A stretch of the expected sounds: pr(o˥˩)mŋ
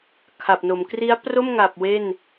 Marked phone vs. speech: correct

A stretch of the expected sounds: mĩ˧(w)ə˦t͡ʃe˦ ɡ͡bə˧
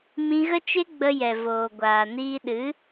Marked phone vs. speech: incorrect: ɣ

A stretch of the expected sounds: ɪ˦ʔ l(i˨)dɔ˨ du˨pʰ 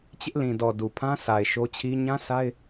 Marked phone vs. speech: incorrect: ĩ˨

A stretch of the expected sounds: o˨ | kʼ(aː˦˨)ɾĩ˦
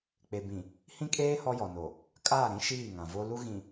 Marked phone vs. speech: correct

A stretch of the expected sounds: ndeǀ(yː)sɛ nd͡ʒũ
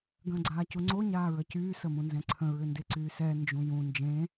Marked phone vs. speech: correct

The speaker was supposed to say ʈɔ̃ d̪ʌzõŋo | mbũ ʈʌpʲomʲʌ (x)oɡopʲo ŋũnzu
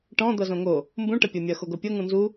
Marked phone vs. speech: correct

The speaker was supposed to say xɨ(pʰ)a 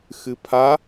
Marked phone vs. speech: correct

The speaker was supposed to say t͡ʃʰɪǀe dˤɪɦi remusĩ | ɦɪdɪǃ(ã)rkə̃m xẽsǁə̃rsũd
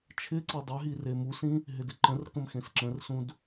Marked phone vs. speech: incorrect: ə̃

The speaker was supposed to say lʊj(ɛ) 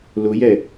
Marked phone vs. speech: correct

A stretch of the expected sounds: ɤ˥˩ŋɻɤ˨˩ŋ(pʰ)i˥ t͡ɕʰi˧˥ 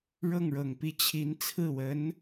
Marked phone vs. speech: incorrect: p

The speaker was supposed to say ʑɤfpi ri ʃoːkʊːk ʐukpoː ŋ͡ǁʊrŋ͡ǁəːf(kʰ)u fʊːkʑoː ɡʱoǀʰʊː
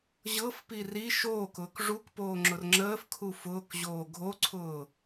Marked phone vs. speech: correct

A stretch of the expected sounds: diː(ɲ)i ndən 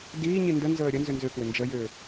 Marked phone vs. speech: correct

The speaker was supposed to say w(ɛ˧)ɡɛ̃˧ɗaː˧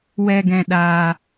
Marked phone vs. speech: correct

